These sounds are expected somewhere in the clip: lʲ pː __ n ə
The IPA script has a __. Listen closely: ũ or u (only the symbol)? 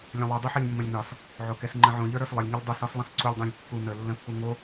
u